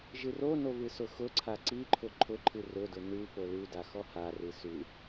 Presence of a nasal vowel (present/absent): absent